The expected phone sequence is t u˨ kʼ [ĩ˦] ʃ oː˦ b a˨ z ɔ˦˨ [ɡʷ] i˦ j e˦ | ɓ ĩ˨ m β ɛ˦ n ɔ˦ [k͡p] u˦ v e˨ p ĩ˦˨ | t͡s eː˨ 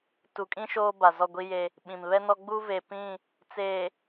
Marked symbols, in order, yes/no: yes, yes, no

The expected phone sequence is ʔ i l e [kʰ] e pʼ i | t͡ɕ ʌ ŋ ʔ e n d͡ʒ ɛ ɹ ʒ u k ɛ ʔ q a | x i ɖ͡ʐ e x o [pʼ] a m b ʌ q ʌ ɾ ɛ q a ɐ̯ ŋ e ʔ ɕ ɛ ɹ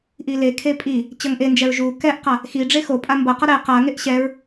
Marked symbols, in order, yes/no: yes, yes

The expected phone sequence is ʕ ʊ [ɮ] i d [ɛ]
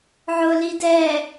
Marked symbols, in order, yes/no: no, yes

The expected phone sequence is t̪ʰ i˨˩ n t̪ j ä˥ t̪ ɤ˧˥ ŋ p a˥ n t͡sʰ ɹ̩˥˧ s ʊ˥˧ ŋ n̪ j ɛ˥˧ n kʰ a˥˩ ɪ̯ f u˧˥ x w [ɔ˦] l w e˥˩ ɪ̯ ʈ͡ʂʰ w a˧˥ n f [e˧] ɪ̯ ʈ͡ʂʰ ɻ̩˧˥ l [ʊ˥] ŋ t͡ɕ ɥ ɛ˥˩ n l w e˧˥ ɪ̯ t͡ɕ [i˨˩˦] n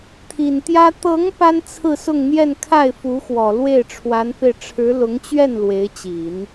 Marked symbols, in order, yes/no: no, yes, no, yes

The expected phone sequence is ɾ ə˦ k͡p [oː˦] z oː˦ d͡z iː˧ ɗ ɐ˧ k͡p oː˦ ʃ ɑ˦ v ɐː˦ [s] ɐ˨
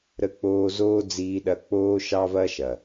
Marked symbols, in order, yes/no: yes, no

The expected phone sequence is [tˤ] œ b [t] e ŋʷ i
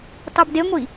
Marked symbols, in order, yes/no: yes, no

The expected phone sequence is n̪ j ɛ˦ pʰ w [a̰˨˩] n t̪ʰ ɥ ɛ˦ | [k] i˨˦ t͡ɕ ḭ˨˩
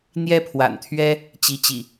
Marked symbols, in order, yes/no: yes, no

